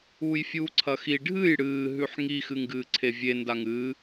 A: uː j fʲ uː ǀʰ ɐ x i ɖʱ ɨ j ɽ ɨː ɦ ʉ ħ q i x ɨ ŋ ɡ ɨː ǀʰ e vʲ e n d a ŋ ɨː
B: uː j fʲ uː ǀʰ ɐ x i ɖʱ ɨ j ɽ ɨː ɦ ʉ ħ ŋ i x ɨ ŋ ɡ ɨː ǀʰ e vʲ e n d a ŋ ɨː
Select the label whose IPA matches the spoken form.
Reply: B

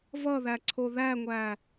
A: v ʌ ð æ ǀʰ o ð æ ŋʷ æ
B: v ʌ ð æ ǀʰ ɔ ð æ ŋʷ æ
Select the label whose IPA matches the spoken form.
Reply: A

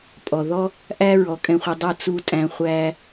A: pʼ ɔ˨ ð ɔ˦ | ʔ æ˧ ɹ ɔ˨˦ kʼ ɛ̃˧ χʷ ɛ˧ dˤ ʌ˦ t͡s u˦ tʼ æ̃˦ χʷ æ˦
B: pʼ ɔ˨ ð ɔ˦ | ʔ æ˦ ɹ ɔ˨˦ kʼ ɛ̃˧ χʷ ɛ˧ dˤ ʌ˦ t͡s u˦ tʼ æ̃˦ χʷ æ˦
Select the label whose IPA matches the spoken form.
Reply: B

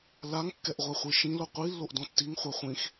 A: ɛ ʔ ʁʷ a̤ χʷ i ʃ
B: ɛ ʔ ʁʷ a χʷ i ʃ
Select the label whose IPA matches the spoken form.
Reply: B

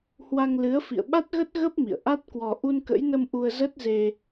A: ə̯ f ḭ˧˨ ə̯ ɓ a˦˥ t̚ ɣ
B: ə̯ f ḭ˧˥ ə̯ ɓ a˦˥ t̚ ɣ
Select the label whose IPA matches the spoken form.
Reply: A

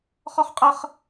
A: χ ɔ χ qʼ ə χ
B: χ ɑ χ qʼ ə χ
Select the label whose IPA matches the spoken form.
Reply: A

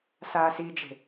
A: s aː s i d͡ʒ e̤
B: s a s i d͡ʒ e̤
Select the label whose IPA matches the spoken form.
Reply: A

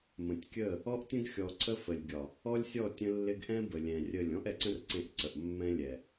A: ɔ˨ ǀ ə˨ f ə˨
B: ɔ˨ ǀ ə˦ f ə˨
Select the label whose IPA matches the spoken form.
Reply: B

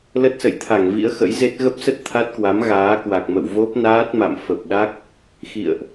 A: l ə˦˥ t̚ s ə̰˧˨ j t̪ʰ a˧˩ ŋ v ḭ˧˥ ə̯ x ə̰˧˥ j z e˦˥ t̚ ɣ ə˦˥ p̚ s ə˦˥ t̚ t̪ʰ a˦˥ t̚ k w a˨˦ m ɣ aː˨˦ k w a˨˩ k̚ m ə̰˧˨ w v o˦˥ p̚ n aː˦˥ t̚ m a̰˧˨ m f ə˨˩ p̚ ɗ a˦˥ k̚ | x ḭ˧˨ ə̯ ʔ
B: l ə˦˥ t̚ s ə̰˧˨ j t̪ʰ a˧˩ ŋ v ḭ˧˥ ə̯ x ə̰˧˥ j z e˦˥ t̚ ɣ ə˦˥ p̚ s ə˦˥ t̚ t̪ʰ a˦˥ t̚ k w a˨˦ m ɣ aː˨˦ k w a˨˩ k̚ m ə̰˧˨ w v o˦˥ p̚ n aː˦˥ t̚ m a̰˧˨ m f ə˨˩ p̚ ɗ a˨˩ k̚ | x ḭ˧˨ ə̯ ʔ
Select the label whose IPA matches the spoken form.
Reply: A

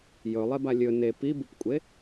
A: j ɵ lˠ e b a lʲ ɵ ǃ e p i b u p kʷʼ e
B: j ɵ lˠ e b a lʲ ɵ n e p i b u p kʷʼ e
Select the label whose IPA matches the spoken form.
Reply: B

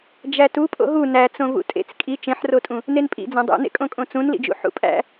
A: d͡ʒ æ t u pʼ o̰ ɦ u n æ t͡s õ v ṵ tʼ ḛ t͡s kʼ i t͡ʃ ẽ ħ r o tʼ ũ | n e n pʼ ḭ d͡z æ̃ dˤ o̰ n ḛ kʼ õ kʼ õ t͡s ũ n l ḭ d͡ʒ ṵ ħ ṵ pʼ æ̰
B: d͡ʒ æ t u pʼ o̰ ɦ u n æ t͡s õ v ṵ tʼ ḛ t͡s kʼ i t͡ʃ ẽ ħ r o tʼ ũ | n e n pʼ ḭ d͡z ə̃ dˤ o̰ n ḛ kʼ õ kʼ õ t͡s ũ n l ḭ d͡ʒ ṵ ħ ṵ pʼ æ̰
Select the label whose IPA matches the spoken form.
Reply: A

